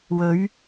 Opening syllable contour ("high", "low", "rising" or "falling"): rising